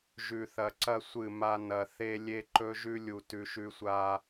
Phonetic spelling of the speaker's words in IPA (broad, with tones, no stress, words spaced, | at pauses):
ʒʉ˨θɐ˨ǀɐ˦ sʷɨ˦˨ma˦ nɐ˨θe˦ lʲe˦ǃɵ˦ʒʉ˦ lʲu˨ tʉ˨ʃʉ˨sʷa˨